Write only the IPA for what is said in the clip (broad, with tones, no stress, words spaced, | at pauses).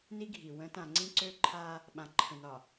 ni˦ɡʱi˨ wə̃˨˦tã˨ ŋ͡ǀĩ˦ǀø˦ǃʰa˦ | ɓã˨ǃʰə̃˨nɒ˨